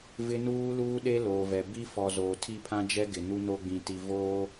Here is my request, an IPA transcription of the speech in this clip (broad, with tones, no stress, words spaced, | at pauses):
vɪ˦nuː˦luː˦ɗe˦ loː˨vɛ˨ bi˦fɔ˨ zoː˨tʰi˦˨pʰã˦d͡ʒɛ˦ ɡɪ˨nu˦no˦ɡ͡bĩ˨ ti˨voː˦